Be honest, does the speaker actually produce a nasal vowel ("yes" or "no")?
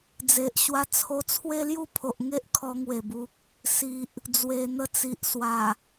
no